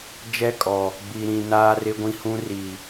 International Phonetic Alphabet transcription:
d͡ʒ ɛ˦ kʼ ɔ˨ | ɡ͡b i˨ ɾ ĩ˨ n aː˦ r ɪ˦ ɡʷ ĩ˦ h ũ˦ r i˨

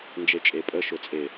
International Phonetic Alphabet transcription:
n d͡ʒ e t͡ʃʼ e pʼ ə ʃ ʊ t͡sʼ e

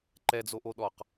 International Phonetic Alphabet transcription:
ǃ ɛ d͡z o ʔ o ɗ ɔ q

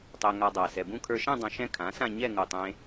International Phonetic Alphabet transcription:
tˤ e˧ ŋ a˧ dˤ a˨˩ s ɛ˨˩ b ũ˥˧ kʰ ə˞˧ ʃ ẽ˥˧ dˤ ũ˧ ʃ ɛ̃˥˧ kʰ ã˩˥ s ã˥˧ ɲ ɛ˥˧ ŋ u˨˩ tˤ ẽ˧

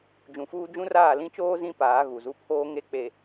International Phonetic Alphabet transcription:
d͡ʒ ũ˨ f uː˦ d͡ʒ ũ˦ r aː˦˨ l ĩ˦ t͡ʃ oː˦ z ĩ˦ p aː˨˦ ɣ u˨ z u˦ pʰ oː˦ ŋ e˦ k͡p e˨

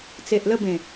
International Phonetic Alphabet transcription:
t͡s e˨ ʔ l ə˥˧ b ẽ˨˩

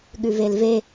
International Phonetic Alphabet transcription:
ɠ ʉ v e l v e

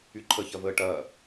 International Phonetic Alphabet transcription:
y ǃʰ ə ç ɐ v əː ʈ ɐː

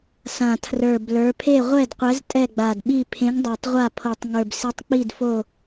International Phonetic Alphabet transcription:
s ã˨˩ tʰ r ə˞˨˩ b l ə˞˨˦ pʰ e˦˨ ʁʷ ɛ˦˨ d qʷ ɛ˨˦ z tʼ ɛ˦˨ ɡ͡b a˨˩ d ɓ i˦˨ pʰ ẽ˨˦ ŋ dˤ a˨˩ tˤ ʁʷ a˦˨ pʰ o˨˩ tˤ ŋ ə˞˨˩ b s i˨˦ tˤ k͡p i˦˨ d f o˦˨

